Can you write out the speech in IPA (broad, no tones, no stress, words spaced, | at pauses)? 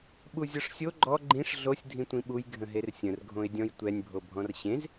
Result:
ɓuzʲɔʂsʲo ɡ͡ǃɔ ɡ͡ǃĩʂ ɮosʲ dʱĩtʷĩɓuj ɡʱə̃ɦersʲə̃r ɡʱõɪ̯dʲɔ̃jtʷɛnʲ bʱobʱɔ̃rɕẽz